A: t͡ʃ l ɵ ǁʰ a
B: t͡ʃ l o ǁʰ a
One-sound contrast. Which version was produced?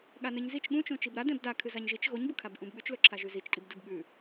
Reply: A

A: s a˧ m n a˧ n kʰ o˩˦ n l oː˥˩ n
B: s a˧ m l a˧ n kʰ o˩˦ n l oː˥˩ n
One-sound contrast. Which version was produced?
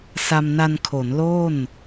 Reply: A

